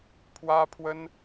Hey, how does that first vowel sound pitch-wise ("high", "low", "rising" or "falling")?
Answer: high